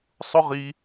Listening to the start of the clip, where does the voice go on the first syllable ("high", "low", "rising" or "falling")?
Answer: high